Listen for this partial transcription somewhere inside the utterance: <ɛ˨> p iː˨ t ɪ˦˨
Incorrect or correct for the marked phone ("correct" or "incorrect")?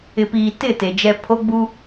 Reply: incorrect